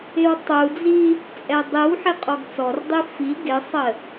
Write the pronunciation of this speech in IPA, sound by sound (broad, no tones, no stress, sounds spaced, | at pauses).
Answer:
ɪ w tˤ u d͡z i | t͡sʼ ɛ dˤ i w ħ ɪ qʼ ɔ ɡ t͡s ɔ r dˤ i f i ɡ ɪ sˤ ə